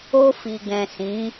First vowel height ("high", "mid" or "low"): mid